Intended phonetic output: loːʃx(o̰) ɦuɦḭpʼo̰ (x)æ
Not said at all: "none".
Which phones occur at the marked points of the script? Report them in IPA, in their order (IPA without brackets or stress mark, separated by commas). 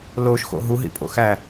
o̰, x